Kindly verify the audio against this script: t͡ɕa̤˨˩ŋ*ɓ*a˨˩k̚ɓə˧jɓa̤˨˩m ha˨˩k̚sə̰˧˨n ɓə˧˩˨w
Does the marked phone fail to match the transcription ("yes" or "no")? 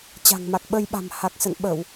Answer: yes